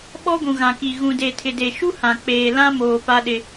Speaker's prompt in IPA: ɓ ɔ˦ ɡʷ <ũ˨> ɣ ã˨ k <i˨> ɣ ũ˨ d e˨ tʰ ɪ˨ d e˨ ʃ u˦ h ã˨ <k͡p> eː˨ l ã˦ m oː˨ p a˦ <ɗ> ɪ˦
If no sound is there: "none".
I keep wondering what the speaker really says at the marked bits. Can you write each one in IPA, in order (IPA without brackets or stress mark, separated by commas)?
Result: ũ˨, i˨, k͡p, ɗ